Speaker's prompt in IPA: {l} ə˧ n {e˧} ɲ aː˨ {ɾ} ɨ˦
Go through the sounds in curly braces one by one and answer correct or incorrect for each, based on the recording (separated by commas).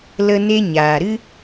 correct, correct, correct